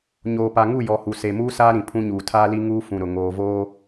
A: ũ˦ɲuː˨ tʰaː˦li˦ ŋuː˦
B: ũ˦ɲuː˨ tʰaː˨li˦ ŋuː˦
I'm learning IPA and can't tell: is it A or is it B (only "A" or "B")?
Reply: A